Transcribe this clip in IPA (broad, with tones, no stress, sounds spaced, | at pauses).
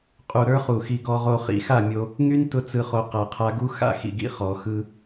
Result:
qʼ u˨ ɾ ə˞˦ χ u˨ x i˧ ɡ ɔ˨ ʁ o˨ χ ḭ˧ x a˦˨ mʲ o˧ | ŋ y˦ n t ʊ˧ t͡s ɯ˨ χ o˨ q a˨ qʰ a˧ ɡ u˦ x a̰˦ x ḭ˨ ɡ ḭ˧ χ ɔ˨ x ɯ˧